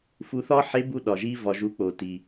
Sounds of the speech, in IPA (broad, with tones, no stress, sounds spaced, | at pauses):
f u˧ θ ɒ˥ ħ e˧˥ b u˧ ɗ ɒ˩ ʒ i˧ v ɒ˩ ʒ u˩˧ k͡p o˩ t i˩